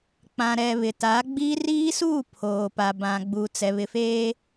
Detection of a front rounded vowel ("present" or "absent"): absent